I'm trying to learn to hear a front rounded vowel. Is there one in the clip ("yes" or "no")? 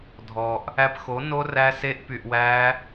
yes